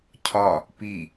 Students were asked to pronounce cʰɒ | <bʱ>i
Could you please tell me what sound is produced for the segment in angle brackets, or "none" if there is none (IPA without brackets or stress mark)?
p